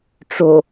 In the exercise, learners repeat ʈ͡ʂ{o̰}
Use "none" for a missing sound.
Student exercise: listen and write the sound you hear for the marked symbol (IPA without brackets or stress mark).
o